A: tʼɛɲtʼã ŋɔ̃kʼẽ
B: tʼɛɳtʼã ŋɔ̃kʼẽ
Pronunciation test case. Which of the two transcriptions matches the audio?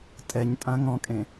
A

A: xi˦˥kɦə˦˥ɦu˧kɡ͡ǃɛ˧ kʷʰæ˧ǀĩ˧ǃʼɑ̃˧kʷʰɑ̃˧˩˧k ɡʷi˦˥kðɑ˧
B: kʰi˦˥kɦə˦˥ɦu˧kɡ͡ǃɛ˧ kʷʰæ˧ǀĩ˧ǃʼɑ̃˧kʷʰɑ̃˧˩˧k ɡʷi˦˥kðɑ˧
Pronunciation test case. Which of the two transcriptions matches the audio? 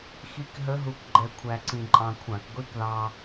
A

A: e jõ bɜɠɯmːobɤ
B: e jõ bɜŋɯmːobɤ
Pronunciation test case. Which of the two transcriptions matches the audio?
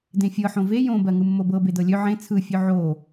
B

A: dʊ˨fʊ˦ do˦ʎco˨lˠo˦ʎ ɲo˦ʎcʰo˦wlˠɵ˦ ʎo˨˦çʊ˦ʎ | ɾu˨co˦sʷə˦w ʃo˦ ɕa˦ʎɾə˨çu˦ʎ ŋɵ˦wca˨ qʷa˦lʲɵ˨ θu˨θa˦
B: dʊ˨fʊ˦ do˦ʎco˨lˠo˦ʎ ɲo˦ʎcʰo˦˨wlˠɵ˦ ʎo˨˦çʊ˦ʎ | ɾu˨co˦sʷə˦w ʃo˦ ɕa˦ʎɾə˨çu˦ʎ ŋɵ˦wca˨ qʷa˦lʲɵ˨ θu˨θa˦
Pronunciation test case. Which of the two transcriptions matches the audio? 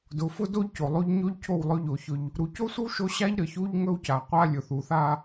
B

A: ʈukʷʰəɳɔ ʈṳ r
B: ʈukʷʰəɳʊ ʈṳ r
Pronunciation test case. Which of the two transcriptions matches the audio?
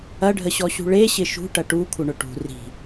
B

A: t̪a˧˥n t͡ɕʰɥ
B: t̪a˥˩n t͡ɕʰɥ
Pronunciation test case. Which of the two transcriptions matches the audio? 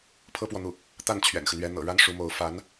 B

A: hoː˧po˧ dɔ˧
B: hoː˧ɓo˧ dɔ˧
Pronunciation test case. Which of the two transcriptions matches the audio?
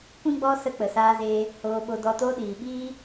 B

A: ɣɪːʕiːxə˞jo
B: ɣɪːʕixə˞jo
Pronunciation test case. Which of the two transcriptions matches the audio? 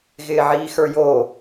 A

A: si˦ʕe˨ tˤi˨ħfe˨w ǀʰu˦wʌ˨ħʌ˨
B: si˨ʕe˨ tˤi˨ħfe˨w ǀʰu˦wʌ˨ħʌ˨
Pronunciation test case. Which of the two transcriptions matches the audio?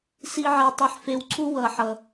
B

